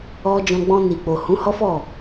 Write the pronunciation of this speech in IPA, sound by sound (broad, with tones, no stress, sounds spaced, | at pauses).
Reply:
ɔ˧ d͡ʒ ɔ̃˧ ɡ͡b ɔ̃˧ n i˨ k͡p o˨ h ũ˨˦ h ɔ˦ f ɔ˦˨